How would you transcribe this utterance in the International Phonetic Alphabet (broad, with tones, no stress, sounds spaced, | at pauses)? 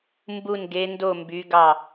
m b u˧˩ n ɡ e˩˧ n d o˧˩ m b y˩˧ ɡ ɑ˧˩